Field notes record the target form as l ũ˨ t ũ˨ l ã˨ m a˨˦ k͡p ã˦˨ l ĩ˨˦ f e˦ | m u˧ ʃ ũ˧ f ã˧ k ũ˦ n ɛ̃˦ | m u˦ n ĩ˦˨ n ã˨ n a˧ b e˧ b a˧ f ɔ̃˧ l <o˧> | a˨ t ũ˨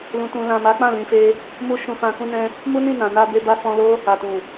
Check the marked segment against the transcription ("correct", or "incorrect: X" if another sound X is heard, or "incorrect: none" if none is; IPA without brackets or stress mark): incorrect: o˦